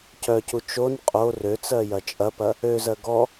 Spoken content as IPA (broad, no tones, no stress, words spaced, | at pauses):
cœcu t͡ʃon qʼo røt͡sɜjɐ t͡ʃʼɐpɐ | øzɜ ɡɔ